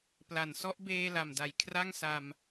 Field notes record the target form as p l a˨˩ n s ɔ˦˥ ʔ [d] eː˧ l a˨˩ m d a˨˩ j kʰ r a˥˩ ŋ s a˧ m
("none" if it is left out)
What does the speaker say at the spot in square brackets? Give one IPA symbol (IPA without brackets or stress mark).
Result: b